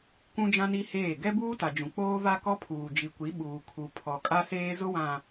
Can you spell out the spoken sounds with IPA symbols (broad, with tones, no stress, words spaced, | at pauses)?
kʷũ˦d͡ʒã˦ni˦heː˦˨ ɡɛ˦buː˦ta˨d͡ʒũ˨ k͡poː˦va˦kɔ˦pʰuː˨ d͡ʒi˨kʷi˨˦ɓuː˨ kʰu˨ pʰɔ˨kʼa˦seː˦ zʊ˦wã˨